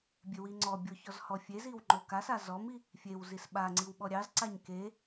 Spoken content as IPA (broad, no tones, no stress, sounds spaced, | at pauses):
bʲ e w i ŋ͡ǀ ɔ bʲ o ç ɔ z h ɔ fʲ e z i w ŋ͡ǃ o k a s a z ɔ m i | fʲ e w z i s ɓ a ŋ͡ǀ i w ɓ ɔ ɾʲ ɑ z ǀ a ɲ k e